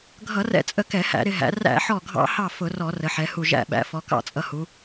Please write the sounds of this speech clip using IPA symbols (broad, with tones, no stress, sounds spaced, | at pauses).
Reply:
ɡʱ ʌ˧˩˧ r ɛ̰˧˩˧ t͡sʼ ə˧˩ k ɛ˧˩˧ h æ̰˧˩˧ ɾ ɪ˩˧ ɦ æ̰˩˧ r æ̰˧˩˧ ħ ɔ˧˩ ɡʱ ɑ̰˧˩˧ h ɑ˧˩ f ʊ˧˩˧ r ɔ˧˩˧ r ə˩˧ ħ ɛ˩˧ h u˧˩ ʒ æ̰˧˩ ɓ æ̰˩˧ f ɔ˩˧ k ɑ̰˧˩˧ t͡sʼ ʌ˧˩ h u˩˧